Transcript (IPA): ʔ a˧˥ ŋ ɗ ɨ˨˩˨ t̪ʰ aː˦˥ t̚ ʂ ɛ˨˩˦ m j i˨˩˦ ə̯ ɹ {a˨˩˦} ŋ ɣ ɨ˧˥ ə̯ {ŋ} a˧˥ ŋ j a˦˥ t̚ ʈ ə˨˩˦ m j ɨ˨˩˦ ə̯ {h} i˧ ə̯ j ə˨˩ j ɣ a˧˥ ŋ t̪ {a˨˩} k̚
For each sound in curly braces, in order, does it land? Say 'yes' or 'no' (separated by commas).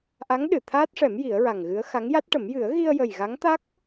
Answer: no, no, no, no